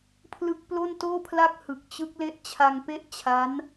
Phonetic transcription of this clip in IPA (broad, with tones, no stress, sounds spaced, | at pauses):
pʰ l ɯ˦˥ k̚ p l o˥˩ n t oː˥˩ pʰ l a˥˩ k̚ h ɯ˨˩ k̚ t͡ɕ ɯ˦˥ k̚ l e˦˥ ʔ t͡ɕʰ a˧ ŋ p e˥˩ ʔ t͡ɕʰ a˦˥ n